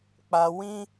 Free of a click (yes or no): yes